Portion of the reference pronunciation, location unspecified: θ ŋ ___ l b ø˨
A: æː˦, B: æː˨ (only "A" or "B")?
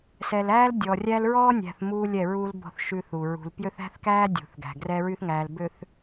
B